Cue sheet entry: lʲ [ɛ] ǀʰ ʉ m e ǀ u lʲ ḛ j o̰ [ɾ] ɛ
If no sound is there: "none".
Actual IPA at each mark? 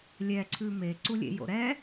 ɛ, ɾ

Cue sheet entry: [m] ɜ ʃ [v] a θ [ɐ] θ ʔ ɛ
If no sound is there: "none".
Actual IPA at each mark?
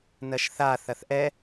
n, θ, ɐ

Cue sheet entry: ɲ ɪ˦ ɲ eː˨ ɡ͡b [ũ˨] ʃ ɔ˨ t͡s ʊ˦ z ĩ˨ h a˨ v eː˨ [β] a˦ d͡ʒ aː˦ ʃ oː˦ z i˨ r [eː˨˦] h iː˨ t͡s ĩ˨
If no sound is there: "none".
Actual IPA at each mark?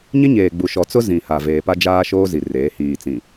u˨, p, eː˨˦

